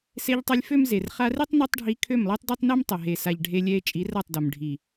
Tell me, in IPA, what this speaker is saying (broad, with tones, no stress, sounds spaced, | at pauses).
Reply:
s e˧ ʎ tˤ ɛ˧ lʲ f ø˦ m z e˨ r χ a˧ r i˦ tˤ n ø˦ tˤ ɖʱ i˧ kʰ ø˦˨ m lˠ i˦ tˤ d ø˦ tˤ n e˦ m tˤ ɛ˨ ɦ e˨ s a˨ ʎ ɖʱ e˧ lʲ ɛ˧ e̯ t͡ʃʼ i˨˦ r a˦˨ tˤ d o˨ m ɖʱ i˨